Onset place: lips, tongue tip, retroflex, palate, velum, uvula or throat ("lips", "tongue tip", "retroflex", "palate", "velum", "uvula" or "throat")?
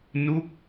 tongue tip